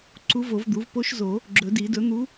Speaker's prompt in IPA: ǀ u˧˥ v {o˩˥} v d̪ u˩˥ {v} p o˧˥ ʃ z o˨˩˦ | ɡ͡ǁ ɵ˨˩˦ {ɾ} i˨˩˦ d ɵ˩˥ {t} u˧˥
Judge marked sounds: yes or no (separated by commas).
no, yes, no, no